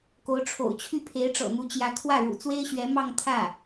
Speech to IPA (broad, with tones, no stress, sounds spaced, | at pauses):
k o˧˥ ʊ̯ ʈ͡ʂʰ o̰˨˩ ʊ̯ t͡ɕʰ y˥˩ pʰ e˧˥ ɪ̯ ʈ͡ʂ ɤ̰˨˩ n̪ u˧˥ t͡ɕ j ä˧˥ kʰ w ä˥˩ ɻ ṵ˨˩ t͡s w e˥ ɪ̯ ɕ ɥ ɛ˧˥ m ɑ˥˧ ŋ t̪ʰ ä˥˩